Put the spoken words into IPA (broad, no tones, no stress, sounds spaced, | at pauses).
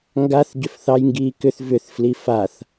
ŋ ɡ a θ ɟ ʏ f θ ɑ j ŋ ɡ iː k ʏ θ v ʏ θ f l i f a θ